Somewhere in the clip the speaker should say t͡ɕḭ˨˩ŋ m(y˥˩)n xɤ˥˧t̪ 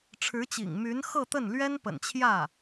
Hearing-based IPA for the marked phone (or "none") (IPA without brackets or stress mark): y˧˥